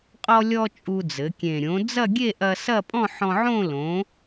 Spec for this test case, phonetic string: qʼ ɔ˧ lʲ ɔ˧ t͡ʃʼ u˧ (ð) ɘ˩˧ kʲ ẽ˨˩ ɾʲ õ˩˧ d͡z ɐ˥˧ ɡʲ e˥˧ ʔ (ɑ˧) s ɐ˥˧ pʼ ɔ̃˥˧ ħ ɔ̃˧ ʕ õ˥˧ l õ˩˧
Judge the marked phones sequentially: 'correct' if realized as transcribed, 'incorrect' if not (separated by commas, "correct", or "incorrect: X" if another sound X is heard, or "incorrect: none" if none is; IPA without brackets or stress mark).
incorrect: d͡z, incorrect: ɐ˧